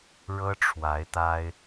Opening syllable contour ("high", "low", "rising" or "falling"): high